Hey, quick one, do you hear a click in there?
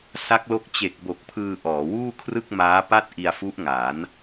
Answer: no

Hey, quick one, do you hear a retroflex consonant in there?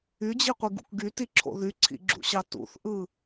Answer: no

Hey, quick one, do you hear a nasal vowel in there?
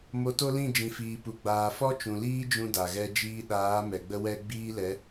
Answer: yes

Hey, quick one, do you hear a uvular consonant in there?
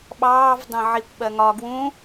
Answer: no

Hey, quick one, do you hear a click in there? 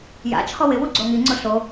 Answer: yes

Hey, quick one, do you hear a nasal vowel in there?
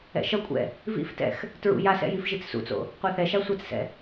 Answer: no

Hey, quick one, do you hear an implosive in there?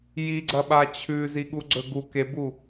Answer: yes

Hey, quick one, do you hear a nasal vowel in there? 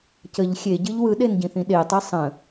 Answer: yes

